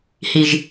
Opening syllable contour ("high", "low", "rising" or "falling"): low